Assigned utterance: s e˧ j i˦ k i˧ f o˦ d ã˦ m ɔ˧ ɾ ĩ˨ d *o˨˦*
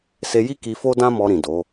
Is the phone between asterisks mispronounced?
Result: no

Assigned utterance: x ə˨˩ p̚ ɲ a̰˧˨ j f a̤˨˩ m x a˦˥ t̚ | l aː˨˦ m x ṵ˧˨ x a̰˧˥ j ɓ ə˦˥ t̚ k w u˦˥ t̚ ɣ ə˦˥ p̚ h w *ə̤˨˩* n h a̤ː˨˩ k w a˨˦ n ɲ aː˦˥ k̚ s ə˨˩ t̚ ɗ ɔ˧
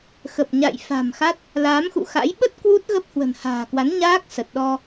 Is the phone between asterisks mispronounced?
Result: no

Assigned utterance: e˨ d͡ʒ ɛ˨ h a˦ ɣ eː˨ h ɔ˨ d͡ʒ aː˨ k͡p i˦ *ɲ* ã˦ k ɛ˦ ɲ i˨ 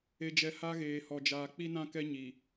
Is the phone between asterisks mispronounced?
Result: yes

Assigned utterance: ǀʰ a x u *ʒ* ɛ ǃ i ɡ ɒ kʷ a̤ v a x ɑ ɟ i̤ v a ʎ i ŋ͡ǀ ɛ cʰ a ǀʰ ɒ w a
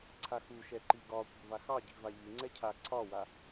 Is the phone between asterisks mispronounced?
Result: yes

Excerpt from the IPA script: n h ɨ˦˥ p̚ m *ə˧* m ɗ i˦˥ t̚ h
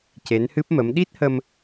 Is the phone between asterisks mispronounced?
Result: yes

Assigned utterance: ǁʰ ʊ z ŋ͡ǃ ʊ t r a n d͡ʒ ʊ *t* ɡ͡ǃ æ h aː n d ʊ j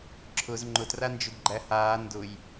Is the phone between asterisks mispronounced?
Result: yes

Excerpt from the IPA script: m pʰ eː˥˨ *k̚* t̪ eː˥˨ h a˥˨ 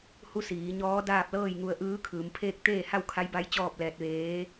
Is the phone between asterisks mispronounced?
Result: no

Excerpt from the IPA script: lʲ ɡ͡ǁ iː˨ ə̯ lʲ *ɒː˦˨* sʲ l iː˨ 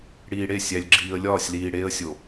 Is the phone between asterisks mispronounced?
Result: no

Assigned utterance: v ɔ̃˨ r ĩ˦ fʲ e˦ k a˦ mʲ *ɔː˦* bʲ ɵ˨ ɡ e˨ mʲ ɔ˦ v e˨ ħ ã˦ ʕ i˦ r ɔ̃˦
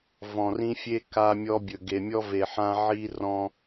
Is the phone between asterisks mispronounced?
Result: yes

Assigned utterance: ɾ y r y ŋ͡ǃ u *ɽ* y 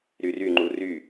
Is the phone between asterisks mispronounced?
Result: yes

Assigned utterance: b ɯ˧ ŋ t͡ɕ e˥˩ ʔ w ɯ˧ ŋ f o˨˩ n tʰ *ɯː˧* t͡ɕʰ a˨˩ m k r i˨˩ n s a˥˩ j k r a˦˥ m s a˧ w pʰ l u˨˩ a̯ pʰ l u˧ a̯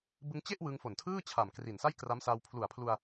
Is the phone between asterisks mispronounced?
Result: yes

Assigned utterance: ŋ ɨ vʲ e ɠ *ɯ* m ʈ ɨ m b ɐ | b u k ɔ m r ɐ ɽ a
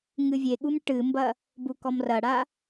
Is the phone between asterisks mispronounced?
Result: yes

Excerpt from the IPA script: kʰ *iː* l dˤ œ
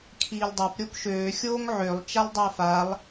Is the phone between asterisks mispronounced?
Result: no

